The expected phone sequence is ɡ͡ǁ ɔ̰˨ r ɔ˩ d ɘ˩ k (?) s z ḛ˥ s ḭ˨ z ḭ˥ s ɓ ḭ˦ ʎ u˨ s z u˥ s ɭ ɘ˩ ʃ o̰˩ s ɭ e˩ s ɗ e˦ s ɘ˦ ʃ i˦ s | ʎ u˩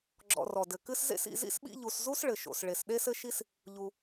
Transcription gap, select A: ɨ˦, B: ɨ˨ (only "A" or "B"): A